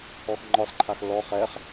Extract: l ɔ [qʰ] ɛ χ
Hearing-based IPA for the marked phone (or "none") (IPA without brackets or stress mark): χ